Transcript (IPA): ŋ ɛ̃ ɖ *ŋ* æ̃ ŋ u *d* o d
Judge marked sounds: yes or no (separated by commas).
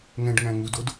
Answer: yes, yes